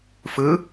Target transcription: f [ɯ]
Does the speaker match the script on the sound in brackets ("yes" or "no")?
yes